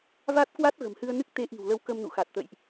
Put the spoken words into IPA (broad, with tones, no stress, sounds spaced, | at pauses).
v a˦˥ t̚ k w a˦˥ t̚ ɣ ə̤˨˩ m h ɨ˧ ə̯ n ɨ˦˥ k̚ t̪ e˨˦ ʔ i̤˨˩ w l ə˨˦ w k ə˧ m n ṵ˧˨ x a˨˩ t̚ t̪ ə̰˧˨ j ʔ